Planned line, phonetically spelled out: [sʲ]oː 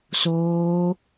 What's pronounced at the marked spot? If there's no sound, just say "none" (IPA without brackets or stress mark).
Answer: s